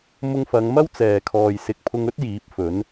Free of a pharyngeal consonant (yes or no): yes